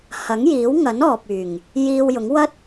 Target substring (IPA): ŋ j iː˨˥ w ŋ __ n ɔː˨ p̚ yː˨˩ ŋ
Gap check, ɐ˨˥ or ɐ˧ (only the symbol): ɐ˨˥